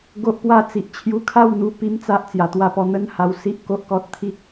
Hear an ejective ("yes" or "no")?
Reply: no